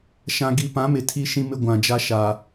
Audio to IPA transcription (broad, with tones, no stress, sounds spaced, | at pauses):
ʃ ã˨ ɡ i˨ p ã˨˦ m ɪ˨ tʰ i˦ ʃ ĩ˦ m ɪ˦ ɡʷ ã˨ d͡ʒ a˦ ʃ a˨